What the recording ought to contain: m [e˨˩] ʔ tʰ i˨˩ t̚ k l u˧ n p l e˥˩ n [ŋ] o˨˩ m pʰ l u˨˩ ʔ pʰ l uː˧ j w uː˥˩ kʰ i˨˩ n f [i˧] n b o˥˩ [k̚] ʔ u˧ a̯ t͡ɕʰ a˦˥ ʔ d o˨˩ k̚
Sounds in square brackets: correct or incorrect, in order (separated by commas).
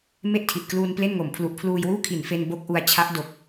incorrect, correct, incorrect, correct